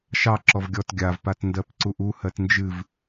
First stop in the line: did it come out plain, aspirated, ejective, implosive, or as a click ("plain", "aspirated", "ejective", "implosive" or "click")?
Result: click